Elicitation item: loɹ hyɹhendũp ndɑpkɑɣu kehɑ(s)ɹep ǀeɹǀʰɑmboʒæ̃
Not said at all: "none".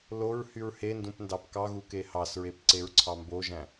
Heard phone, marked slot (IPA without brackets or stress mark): s